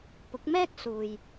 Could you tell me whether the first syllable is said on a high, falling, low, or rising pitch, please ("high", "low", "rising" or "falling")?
rising